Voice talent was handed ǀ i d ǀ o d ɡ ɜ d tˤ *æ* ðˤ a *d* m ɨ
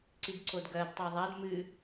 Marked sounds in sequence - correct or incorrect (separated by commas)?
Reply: incorrect, correct